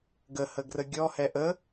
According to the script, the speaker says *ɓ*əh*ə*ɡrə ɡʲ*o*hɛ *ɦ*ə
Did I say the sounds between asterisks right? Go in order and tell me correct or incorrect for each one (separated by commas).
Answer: incorrect, correct, incorrect, incorrect